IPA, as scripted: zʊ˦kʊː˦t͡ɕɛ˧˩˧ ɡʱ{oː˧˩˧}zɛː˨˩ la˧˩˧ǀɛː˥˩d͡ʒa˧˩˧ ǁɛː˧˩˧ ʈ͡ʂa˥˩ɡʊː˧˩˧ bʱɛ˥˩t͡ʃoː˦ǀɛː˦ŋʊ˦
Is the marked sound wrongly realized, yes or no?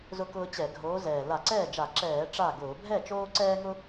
yes